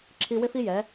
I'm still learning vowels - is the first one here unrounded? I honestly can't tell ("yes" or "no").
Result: yes